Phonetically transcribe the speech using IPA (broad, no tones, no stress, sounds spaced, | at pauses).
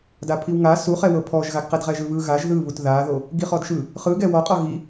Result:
d a pʰ i w ŋ a s u χ ɛ w ɤ pʰ ɔ ʒ ɣ a ɡ q ɛ d ʁ ɛ ʒ ɯ β ɯ ɣ a ʒ ð ɯ β u t ð a ð o | ɡ i χ ɔ d ʃ ɯ | χ ɯ ɡ ɛ w ɔ qʼ ɔ ɣ i